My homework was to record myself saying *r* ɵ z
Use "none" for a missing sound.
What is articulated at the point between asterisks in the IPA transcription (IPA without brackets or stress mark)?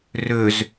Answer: r